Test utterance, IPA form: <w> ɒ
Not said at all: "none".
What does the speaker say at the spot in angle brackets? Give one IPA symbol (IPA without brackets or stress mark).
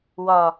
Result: w